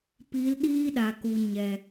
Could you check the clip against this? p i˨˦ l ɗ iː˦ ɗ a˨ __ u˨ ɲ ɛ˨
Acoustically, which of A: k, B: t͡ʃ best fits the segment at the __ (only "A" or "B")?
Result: A